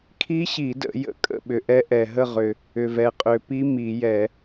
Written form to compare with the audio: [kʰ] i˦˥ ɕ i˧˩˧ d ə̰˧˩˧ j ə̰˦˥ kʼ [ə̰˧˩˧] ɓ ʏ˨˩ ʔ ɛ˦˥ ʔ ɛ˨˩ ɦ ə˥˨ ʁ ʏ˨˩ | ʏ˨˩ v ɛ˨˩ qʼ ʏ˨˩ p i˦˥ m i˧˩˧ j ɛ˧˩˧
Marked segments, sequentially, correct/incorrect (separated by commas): correct, incorrect